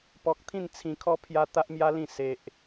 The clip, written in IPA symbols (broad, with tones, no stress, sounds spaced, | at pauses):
p ɔ˨ k̚ t̪ʰ ĩ˥˧ n t͡sʰ ĩ˧ kʰ ɔ˦ pʰ j a˧ t̪ a˦ ʔ m j a˦ l ĩ˥˧ s e˦ ʔ